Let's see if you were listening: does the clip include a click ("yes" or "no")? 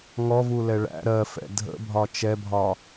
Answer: no